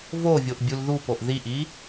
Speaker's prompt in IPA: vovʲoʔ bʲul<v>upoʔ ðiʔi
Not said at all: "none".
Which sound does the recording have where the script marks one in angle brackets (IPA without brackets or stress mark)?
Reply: ð